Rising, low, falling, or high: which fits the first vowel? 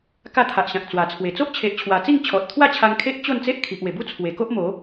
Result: falling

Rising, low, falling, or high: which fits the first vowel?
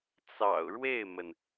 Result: low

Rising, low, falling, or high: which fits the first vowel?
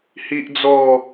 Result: high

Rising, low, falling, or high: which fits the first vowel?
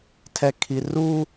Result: low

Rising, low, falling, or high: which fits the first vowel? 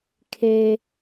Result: high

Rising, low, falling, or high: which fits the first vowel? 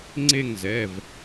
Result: falling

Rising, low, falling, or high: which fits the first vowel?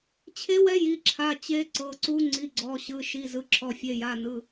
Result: rising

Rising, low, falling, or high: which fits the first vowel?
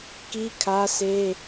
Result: high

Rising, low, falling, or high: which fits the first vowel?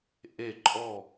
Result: falling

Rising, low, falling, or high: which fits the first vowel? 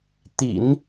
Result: low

